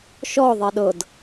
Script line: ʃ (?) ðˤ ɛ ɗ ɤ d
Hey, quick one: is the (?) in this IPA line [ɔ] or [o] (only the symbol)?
ɔ